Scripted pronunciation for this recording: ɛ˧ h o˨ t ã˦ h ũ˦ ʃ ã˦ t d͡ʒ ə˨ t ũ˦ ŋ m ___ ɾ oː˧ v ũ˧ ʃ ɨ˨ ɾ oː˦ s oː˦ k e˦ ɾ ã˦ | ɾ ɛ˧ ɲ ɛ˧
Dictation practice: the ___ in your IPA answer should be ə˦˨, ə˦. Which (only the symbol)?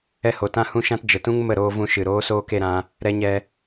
ə˦˨